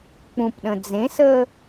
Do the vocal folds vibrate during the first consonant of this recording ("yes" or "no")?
no